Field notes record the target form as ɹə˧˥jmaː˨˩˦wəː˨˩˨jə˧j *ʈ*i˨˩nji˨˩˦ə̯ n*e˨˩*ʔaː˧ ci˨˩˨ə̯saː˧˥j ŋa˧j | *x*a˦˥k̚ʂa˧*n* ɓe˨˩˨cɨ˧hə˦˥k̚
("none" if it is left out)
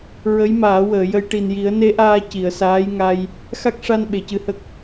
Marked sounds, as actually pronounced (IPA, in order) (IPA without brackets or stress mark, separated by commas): ʈ, e˧˥, x, n